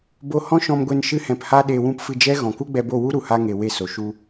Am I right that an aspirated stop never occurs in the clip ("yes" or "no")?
yes